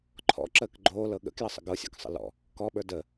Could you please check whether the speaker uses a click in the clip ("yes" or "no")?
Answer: yes